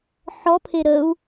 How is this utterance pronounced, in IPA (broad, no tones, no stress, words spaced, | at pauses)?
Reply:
ħɔpʰe ɾəu̯